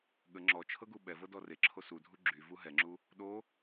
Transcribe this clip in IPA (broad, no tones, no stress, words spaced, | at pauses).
ɠə ŋ͡ǁɔt͡ʃʰɤ ɡuɓɛvɤ dɔreǁʰo sudʱu ɡ͡ǁy vuɦɛŋ͡ǁu | ɗo